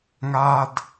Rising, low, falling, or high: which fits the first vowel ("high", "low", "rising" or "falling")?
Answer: high